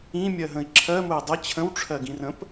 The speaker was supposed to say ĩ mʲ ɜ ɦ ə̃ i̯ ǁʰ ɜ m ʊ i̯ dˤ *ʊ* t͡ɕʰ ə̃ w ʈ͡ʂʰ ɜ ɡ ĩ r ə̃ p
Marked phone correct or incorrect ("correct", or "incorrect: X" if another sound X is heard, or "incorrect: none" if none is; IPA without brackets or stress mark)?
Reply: incorrect: ə